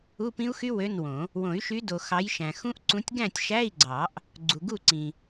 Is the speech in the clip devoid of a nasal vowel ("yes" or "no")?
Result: no